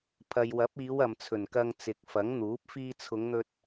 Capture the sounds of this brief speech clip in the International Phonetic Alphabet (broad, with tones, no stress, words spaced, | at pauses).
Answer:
pʰɐ˨jwɐ˨˥p̚iː˨˧w ɐ˨mt͡sʰɵ˨˩nkɐ˧ŋ t͡sɪ˨k̚fɐ˨˥ŋn̪uː˨˥p̚ fiː˧t͡sʰʊ˨˧ŋn̪ɵ˧t̚